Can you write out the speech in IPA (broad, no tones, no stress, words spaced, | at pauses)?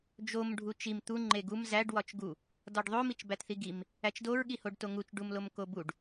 d͡ʒom ɖʱut͡ʃim t̪u ŋ͡ǃeɡum zæɖ wɒt͡ʃɡu | dɒɖðˤo mit͡ʃbætθiɡim | æt͡ʃdoɹ ɠihoɖtoŋut͡ʃ ɖumlomkobuɖ